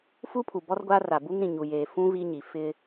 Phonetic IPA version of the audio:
f u˦ pʰ u˨ b ɔ˦ r ɡʷ a˦ r a˨ b u˦ ŋ ɾ ĩ˨ ɲ u˨ j eː˨ f ũ˦ v i˦ ɲ i˨ f ɪ˦

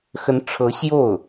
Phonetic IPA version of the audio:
x ə˧˥ n ʈ͡ʂʰ ɤ˧˥ ɕ j o˥˩ ʊ̯

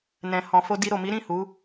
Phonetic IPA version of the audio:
n ɛ̃˨ h ɔ̃˨ f o˧ d i˧ ɾ o˨ m i˨˦ ɾ ĩ˦˨ h u˨˦

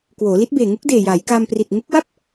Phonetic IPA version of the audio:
k w oː˩˦ l i˦˥ t̚ b eː˨˩ ŋ u˦˥ k̚ d eː˨˩ j aː˩˦ j k a˧ m p r i˨˩ t̚ ŋ u˦˥ k̚ w a˥˩ p̚

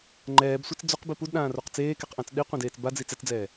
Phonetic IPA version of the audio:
ŋ͡ǃ ɛː b sʷ ɛ t͡s d͡z o q b i p u d ɗ ãː r o q t͡s eː k ɛ q ʔ ã t͡s ɗ i qʷ ẽ d eː t͡s b a d͡z i t͡s ɛ t͡s d͡z ɛː

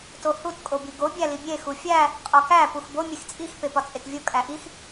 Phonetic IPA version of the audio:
t o h u t kʼ o b i ɡ o bʲ æ l i bʲ e x u fʲ æ | qʼ ɒ k æ p u x b o mʲ e x t͡sʼ i x p e p ɒ t͡sʼ e t vʲ o kʼ æ ʔ i x

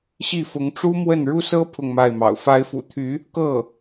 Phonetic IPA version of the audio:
ɕ i˥˩ f ʊ˧˥ ŋ ʈ͡ʂ u˥ m w ə˥˩ n ɻ u˥ s ɤ˥ pʰ ʊ˥˧ ŋ m a˥˩ ɪ̯ m ɑ̰˨˩ ʊ̯ f a˧˥ ɪ̯ f ṵ˨˩ t̪ʰ y˧˥ | k ɤ˥˩

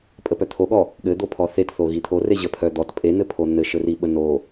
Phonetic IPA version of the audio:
pʼ ə p œ t̪ʰ o ɠ ɔ | ɠ ɘ d̪ o pʰ ɔ θ e t θ o ɣ i t̪ʰ o r e ʑ ə pʰ œ d̪ ɔ t pʼ e n̪ ɘ pʰ o n̪ ɘ ʃ ɘ r i ɓ ə n o

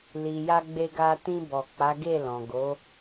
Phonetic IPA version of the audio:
l i˨ j a˧ ɡ͡b e˧ ɡ a˧ t ĩ˧ b ɔ˨ k͡p a˨˦ ɡ e˦˨ l ɔ̃˨ ɡ o˨˦

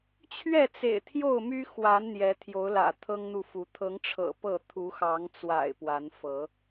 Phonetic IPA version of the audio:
t͡ɕʰ ɥ ɛ˥˨ t͡s ḛ˨˩ ɪ̯ t̪ʰ j o˥˨ ʊ̯ m y˦ x w a˨˦ n n̪ j ɛ˨˦ t̪ʰ j o˨˦ ʊ̯ l ä̰˨˩ t̪ʰ ɤ˦ ŋ n̪ u˨ f u˨˦ t̪ʰ ɤ˨˦ ŋ ʈ͡ʂʰ ɤ̰˨˩ p ɤ˥˨ t̪ʰ u˨˦ x ɑ˨˦ ŋ t͡s w a̰˨˩ ɪ̯ p w a˨˦ n f ɤ˨˦

